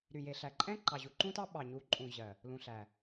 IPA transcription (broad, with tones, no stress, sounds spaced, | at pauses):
ɾ y˨ j e˨ ɬ æ˨ ǃʼ ɛ̃˦ ǃ ɑ˨ ʑ u˨ ǃ ũ˦ t ɑ˦ ɓ ɑ˨ ɲ u˨˦ ǃʼ ũ˨ ʑ ɜ˨ | l ũ˨ ɬ æ˨